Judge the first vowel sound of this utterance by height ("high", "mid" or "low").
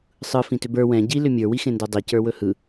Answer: high